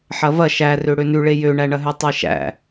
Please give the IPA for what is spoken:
ħ ɐ v ɐ ʃ æ r ø ɽ ø n ʉ ɭ e j ø ɳ æ ɳ ɐ ɦ ʉ tˤ e ʃ æ̰

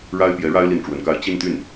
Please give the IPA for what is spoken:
ɻ a˥ ɪ̯ p j ɛ˧˥ ɻ a˥ ɪ̯ l i˥˩ n ʈ͡ʂ w ə˧˥ n k a˥˧ ɪ̯ t͡ɕ i˥˧ n t̪ y˥˩ n

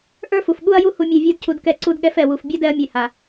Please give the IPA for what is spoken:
ʔ ə˞˦ f u˨ f ɠ u˦ ɐ̯ j u˦ h u˧ mʲ ɛ˧ vʲ ə˞˦ d cʰ u˧ d k ɛ˦˨ ǀ u˧ d ɠ ɛ˧ f ɛ˨ w u˨ f bʲ a˦ d ɛ˧ ɐ̯ mʲ ɛ˨ h a˨

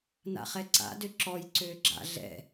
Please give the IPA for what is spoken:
n a̰ χ ɛ ǀ a̰ d ø ǁ ɔ j ǀ øː ɡ͡ǁ a̰ ɮ ɛ̰

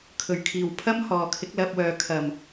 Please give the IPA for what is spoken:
kʰ ɵ˨˩ ɥ kʰ iː˨˩ w pʰ ɐ˥ m h ɔː˨ kʰ ɪ˨˥ k̚ l ɐ˧ p̚ w œː˨ kʰ ɐ˨˩ m

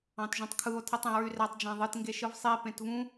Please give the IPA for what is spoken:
ɑ̃ t ʒ ũ tˤ kʰ ɯ o̯ tʰ i tˤ ẽ ɹ y r æ tˤ d͡ʒ æ̃ ðˤ ɯ t ŋ ɡ e ʃ ɯ v sˤ i p ẽ t v ũ

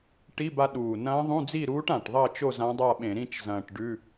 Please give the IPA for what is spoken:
ʈ i˧˥˧ b a˧ ɗ uː˨˩ n ɐ̃ː˧˥ ðˤ ũ˧˥˧ d͡z i˥˨ ɾ uː˧˥ ʈ ã˨˩ ʈ ðˤ ɐː˥˨ t͡ʃ o˥˨ z ã˧˥ dˤ a˥˨ ɓ ẽ˧˩˧ ɾ ĩ˥˨ t͡ʃ z ɐ̃ː˨˩ ʈ ɖ ʉ˧˥˧

